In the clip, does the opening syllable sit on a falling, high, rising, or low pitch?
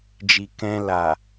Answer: low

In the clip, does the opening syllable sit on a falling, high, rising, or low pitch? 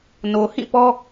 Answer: low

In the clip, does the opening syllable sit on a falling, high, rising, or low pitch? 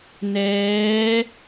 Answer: rising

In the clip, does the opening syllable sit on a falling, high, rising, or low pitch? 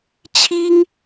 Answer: high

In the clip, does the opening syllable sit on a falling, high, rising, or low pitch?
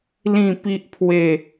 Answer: falling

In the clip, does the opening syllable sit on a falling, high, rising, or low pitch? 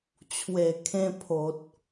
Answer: low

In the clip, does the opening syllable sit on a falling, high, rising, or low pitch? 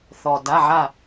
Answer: low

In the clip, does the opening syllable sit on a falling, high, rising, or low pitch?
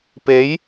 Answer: rising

